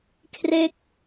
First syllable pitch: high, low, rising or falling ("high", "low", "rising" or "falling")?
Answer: falling